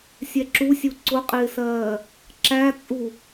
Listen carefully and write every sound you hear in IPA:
sʲ ɛ ǁ u sʲ u ǀ ʊ qʼ ɪː s ɜː | ǁ æ t͡sʼ u

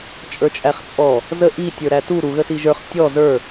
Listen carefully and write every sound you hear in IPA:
t͡ʃʼ ə˞ t͡ʃʼ æ χ t͡sʼ ɔ | z ə ʔ i tʲ ə˞ ɾ æ t u ɾ u ɣ ə s i ʒ ə˞ χ tʲ ɔ z ə˞

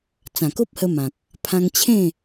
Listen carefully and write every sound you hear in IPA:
t͡s ã˨˩ k o˦ p̚ h ə˧ m ã˨ k̚ | pʰ ã˧ ŋ t͡ɕʰ ẽ˥˧

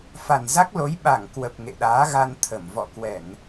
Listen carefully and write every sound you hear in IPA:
f a˨˩ n z a˦˥ k̚ l o˨˦ j ɓ a˧˩ ŋ k w ə˨˩ p̚ ŋ ḛ˧˨ ɗ aː˨˦ ɣ a˧ n t̪ʰ ə˧˩ m v ɔ̰˧˨ k w ɛ˧˩˨ n

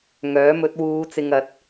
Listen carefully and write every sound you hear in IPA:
ŋ œː˨˥ m ɵ˨˥ t̚ w uː˨˧ t͡s ɪ˨ ŋ ɐ˨˥ t̚

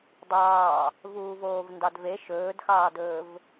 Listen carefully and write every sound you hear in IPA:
dˤ ɑː | v uː v oː v n d ɑ d v e ʃ ɵː d x ɑː d ɵː v

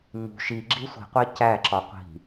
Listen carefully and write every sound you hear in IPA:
ɲ ṳ ʃ i ɡ͡ǁ i sʷ i̤ qʷ æ c æ ǁ ɒ qʷ i̤

